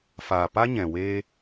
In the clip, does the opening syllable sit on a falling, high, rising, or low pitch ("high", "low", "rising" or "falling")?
low